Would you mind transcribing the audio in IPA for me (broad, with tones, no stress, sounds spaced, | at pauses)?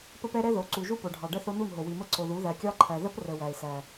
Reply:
p ə˦ p ɛ˦ ɾ ɛ˦ ð o˨˦ ǀ u˨ ʒ u˦ p o˨ ɖʱ ɑ˨ ɖ ə˦ θ o˦ n u˦˨ n ɦ o˨ w i˨ m ə˦ ǀ o˨ ð u˨˦ ð æ˨ kʲ ɑ˦ ǃʰ æ˨ ð ə˦ p r ə˨ w æ˨ ɪ̯ s æ˨